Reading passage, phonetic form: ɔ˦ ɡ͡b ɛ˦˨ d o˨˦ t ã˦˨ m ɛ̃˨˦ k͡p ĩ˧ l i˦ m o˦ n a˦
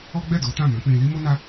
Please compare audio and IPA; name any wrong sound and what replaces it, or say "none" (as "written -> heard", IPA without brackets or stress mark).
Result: none